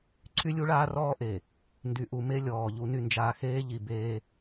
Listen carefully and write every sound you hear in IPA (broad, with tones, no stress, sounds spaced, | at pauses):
ǀʰ y˦ lʲ u˦ ɭ aː˦ r ɔː˦ ʔ e˨ | n d y˨ ʔ u˨ m e˦ lʲ ɔː˨ ʎ u˦ n y˦ n d͡ʒ aː˦ x eː˦ ʎ i˨ b eː˦